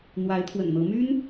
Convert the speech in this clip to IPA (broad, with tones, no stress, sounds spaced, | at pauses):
n̪ w a˧˥ ɪ̯ t̪ʰ w ə̰˨˩ n n̪ ɤ˧˥ m y˥ n